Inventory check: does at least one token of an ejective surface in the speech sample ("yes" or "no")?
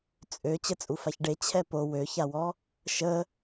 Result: yes